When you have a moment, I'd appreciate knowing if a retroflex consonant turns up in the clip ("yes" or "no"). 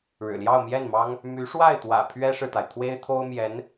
yes